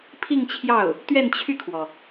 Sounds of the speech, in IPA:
pʰi˥˧ŋt͡ɕʰjɑ˥˩ʊ̯ | t̪ɥɛ˥˧nt͡ɕʰy˥˩kʰwɔ˩

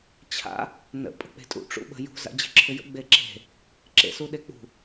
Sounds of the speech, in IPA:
t͡ɕʰa̰ | nə̰ pʼə̤k͡pe̤tʼṵ ʈ͡ʂṵɓə̤ jṳ za̰d͡ʑe̤ǁʰʏjə̰ ɡ͡beǁe̤ | ǁḛsuɗek͡pṳ

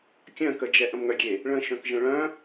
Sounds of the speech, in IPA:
kʲœ̃kəd͡ʒɛ ʔə̃mŋœɡʲe | ɭə̃ʃœ̃kʒə̃ ɭœ̃

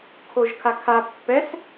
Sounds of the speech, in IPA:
kʰoʒkʰakʰa pːɛs

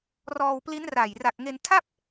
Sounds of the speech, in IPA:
rɔː˧wpli˦˥nra˨˩j ra˨˩k̚ŋe˧ntʰa˥˩p̚

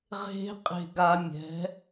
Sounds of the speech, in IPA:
ʁe̤˦qʼe̤˧ ɡa˧mʲɛ̤˨˦

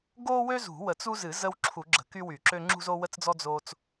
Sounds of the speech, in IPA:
ɡo˦wø˦ zṳ˨˩˦wə˨˩˦t͡su˦zɨ˨˩˦ zə˦wǁʰu˨˩˦ɡ͡ǁə̤˨˩˦ ky˦wy˨˩˦ǁø˦ ŋ͡ǁṳ˦zo˦wə˦t͡sd͡zɔ˦ d͡zo˦t͡s

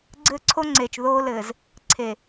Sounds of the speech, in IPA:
ɡ͡ǀɘː˦ǀʰo˦ŋ͡ǀeː˨t͡ʃ ðoː˦lɘː˨z | ǀʰe˨

